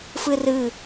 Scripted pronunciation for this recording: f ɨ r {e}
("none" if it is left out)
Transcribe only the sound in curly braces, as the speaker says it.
ɨ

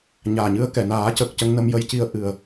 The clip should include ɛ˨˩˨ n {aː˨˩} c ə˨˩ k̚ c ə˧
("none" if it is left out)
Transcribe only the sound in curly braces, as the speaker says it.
aː˨˩˦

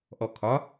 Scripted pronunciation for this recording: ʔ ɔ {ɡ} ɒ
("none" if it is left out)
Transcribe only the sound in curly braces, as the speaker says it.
kʰ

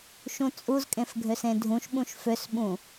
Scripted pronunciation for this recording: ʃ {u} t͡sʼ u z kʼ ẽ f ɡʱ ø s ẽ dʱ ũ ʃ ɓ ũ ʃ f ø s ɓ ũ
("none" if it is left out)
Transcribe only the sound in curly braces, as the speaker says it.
ũ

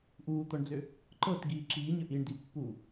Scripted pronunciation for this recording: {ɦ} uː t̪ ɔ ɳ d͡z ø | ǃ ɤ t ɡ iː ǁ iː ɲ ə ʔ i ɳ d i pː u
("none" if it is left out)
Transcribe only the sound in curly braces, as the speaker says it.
ʔ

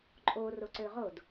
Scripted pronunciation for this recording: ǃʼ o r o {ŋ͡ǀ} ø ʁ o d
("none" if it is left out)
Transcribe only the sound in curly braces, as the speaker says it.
ǀ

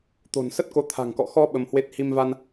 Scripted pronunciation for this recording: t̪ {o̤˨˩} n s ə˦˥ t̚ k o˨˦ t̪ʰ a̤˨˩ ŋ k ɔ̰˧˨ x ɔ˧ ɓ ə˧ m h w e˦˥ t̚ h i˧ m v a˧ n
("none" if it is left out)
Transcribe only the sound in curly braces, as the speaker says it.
o̤˨˩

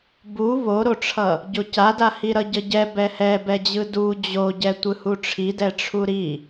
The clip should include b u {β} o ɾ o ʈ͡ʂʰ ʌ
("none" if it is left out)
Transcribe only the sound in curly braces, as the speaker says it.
β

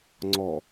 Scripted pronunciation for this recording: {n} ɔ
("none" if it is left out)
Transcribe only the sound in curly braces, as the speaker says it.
ŋ͡ǀ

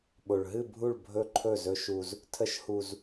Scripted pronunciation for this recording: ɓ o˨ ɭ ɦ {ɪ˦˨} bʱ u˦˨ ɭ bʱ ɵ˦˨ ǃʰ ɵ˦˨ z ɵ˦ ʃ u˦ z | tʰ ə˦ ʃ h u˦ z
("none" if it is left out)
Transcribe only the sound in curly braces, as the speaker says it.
ɨ˦˨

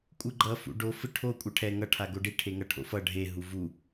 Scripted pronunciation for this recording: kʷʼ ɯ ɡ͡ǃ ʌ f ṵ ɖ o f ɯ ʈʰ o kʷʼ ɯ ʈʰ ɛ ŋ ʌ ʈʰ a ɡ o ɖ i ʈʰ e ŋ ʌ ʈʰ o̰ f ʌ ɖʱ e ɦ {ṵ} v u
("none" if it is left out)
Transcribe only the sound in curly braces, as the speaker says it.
u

